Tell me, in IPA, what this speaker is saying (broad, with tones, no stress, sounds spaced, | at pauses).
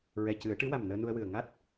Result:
ɹ ɛ˨˩ c ɨ˨˩˦ ə̯ ʈ ɨ˧˥ w a˨˩ m n əː˧ n u˧ ə̯ w ɨ˨˩ ə̯ ŋ a˦˥ t̚